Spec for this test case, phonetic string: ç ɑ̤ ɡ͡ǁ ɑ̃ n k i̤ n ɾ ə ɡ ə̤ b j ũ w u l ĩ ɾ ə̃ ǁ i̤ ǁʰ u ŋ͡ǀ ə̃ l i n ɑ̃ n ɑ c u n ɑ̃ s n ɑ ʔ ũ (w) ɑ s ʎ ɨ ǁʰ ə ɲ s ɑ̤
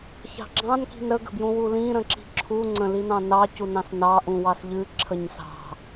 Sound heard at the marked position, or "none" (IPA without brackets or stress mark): w